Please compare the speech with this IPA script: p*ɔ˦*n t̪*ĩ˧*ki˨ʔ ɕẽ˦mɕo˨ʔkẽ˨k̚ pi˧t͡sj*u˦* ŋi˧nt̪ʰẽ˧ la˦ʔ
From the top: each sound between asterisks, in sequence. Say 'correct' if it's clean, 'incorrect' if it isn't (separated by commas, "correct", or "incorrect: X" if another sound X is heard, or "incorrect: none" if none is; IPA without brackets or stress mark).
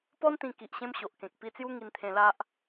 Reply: correct, correct, correct